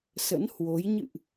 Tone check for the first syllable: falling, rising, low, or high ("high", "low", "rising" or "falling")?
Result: rising